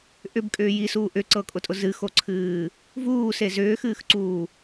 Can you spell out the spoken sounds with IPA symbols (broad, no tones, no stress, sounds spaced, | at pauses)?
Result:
ʔ ʏ b kʼ ʏː j i s uː ʔ ʏ ǀ ɤ kʼ ʊ tʼ ʊ z ɨ x o ǀʰ ɨː | v uː s e z ʏː x ɨː x ǀ uː